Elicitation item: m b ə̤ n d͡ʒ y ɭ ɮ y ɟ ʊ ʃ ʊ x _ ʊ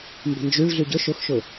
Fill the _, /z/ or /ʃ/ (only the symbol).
ʃ